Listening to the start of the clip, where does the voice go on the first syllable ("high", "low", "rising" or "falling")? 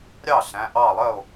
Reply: falling